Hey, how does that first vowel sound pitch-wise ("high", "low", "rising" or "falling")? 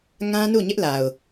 high